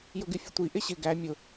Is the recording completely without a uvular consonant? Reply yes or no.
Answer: yes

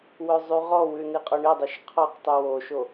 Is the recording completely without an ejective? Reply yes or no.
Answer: no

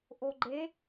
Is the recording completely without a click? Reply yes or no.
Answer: no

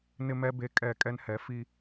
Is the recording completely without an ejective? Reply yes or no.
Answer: no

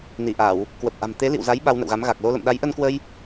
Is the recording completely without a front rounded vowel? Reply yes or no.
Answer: yes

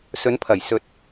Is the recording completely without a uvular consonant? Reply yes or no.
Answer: yes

